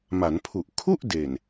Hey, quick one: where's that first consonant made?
lips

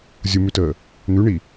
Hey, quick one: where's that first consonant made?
tongue tip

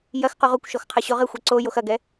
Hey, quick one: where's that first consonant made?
palate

